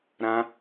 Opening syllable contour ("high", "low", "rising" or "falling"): high